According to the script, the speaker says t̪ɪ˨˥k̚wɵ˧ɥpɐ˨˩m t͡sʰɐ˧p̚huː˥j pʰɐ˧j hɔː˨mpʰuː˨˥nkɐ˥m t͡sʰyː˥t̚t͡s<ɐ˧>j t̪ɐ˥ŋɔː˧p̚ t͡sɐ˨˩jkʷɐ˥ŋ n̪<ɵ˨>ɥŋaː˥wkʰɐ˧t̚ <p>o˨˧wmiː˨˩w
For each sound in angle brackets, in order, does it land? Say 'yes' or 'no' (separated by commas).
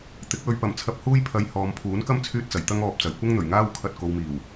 no, no, no